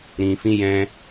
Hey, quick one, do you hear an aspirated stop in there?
no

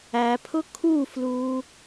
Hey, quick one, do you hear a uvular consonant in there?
no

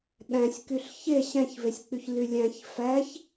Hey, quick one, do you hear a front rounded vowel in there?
yes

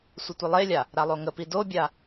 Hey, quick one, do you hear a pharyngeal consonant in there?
no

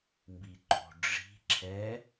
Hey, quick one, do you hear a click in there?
yes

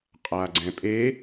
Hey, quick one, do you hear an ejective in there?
yes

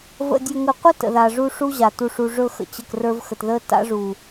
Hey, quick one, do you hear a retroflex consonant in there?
yes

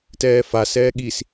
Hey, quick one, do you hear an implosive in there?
yes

